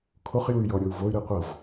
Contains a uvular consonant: yes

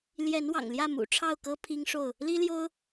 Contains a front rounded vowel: no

